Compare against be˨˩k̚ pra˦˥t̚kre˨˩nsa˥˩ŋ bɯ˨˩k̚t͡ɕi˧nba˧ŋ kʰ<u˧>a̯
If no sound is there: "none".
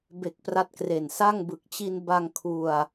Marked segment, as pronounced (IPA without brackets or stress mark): u˧